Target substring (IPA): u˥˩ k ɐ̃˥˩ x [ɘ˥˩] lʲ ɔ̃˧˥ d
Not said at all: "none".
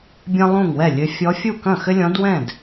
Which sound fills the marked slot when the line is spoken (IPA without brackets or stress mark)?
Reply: ɘ˥